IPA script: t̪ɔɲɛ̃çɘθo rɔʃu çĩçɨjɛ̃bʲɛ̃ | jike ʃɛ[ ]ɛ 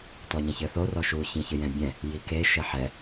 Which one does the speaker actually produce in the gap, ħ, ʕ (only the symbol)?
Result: ħ